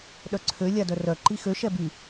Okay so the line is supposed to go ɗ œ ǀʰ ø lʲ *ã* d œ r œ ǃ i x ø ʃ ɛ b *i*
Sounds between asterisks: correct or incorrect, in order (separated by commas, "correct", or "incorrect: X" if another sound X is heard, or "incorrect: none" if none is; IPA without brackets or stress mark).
incorrect: a, incorrect: y